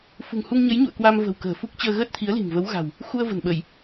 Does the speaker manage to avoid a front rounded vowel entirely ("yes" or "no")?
yes